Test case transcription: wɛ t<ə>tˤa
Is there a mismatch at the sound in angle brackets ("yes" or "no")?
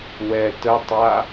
no